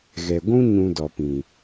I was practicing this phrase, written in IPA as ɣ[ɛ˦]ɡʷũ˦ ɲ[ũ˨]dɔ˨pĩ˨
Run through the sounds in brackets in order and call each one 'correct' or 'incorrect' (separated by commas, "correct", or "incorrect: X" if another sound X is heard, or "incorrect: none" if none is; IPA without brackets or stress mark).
incorrect: ɛ˨, incorrect: ũ˧